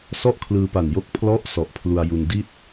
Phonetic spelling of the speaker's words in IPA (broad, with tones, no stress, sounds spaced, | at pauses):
s ɔ˥˩ ʔ kʰ l ɯː˧ p a˨˩ n j o˥˩ k̚ pʰ l ɔ˦˥ ʔ s ɔ˨˩ ʔ pʰ l u˧ a̯ j u˧ n d i˥˩ t̚